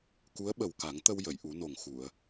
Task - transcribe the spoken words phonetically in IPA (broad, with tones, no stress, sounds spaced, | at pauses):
k u˧˥ ə̯ ɓ ə˨˩ w k a˨˩˦ ŋ t̪ ə˧ w j ə˨˩˨ j ʔ u˨˩˦ n o˨˩ ŋ x u˨˩˨ ə̯